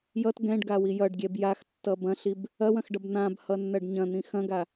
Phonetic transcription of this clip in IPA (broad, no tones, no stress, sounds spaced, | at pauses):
j ʌ t ɡ ɛ̃ ɖ ɡ a w i j ʌ ɖ ɡʲ ɛ b j a x tː ʌ b ɐ̃ ɬ i b | ɐ w ɐ̃ x ɖ ʌ b n̪ ã b h ʌ nː ɐ ɖ ɲ ɐ̃ n̪ ĩ x ɐ̃ ɡ a